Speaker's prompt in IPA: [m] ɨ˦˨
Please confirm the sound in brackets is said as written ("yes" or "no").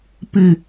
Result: no